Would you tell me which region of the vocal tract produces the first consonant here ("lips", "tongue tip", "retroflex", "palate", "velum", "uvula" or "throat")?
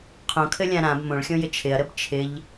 uvula